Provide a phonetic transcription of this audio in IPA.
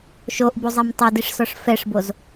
ʃ o ʔ b u zˤ ɛ m tˤ o d i ʂ s ɔ ʂ f ɛ ʂ b o z

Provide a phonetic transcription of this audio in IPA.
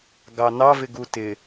ɡ ɑ n ɑ v ɪ ɡ u t ɪ

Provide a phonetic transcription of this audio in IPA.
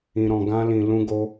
ĩ˧ ɾ ɔ̃˧ ɡ ã˦ l ĩ˧ l ũ˦ ɡ o˦

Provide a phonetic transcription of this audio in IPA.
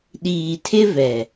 ɗ iː˨ tʰ ɪ˦ v ɛ˨

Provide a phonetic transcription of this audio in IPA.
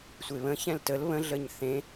sʷ e β ə̃ ç ɛ̃ l t ə l β ə̃ ɮ ə ɲ θ ẽ

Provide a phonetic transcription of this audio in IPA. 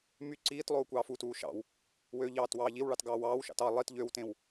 m y ǀ iː t lˠ oː kʷ ɑː f u t uː ʃ ɑ̰ w | w ø ʎ ɑː t w ɑː ʎ i w ɭ ɑ t ɡ ɑː w ɑː w ʃ ɑ̰ t ɑ lˠ i t ʎ ø w t ẽ w

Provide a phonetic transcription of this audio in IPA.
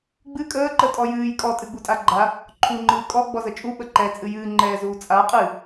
ɡ͡b ɨ kʼ əː ǃ ə tʼ ɔ j ɨː j kʼ ɔ tʼ ɨ ɡ͡b u tʼ a ɡ͡ǃ a | ǃʰ u ŋ͡ǃ ɨː kʼ ɔ ɡ͡b ɔ z ə t͡ʃʼ u ɓ ə ǃ ɛ t͡sʼ ɨ j ɨː ŋ͡ǃ ɛː z uː t͡sʼ a qʼ ɨ

